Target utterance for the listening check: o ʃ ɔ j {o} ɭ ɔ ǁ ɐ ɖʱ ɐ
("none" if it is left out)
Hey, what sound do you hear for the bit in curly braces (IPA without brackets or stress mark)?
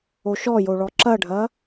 o